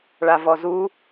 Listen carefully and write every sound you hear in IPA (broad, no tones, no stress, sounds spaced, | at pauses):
ɭ a v ɔ z u